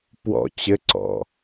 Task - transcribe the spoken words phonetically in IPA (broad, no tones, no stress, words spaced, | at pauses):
pwɔ̰ t͡ɕɘǀɔ̰